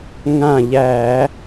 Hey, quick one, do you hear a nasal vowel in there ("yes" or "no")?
yes